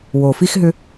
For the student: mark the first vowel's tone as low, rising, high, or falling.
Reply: low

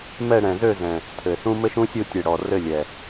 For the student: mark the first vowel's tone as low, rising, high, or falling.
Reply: falling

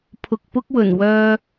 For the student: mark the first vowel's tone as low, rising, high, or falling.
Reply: low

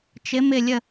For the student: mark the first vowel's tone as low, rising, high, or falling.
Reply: rising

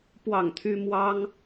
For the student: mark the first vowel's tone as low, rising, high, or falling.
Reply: falling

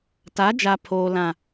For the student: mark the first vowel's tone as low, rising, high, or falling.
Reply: rising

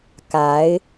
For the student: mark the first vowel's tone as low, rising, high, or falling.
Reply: rising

